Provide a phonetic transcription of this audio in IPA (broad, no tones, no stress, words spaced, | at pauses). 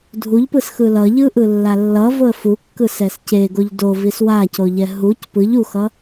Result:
dʱuʎpɯs xɯlʌʎɯ ʔɯlːalːʌ voə̯fukːɯ sɛsceɡoʎ do viswacoʎɛ ɦuc pɯʎ uxʌ